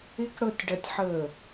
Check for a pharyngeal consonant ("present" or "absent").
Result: present